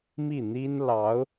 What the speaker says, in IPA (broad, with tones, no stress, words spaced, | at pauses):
mi˥˩ n̪i˥n lɑ˧˥ʊ̯